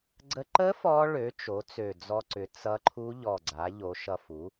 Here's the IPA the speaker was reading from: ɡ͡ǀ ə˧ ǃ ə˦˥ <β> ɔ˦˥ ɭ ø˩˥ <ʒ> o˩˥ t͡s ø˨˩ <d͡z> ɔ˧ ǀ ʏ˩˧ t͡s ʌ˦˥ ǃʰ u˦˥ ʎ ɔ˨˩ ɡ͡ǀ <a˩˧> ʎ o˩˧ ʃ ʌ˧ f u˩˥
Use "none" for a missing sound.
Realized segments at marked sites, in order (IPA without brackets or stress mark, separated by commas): f, t͡ʃ, d͡z, a˩˧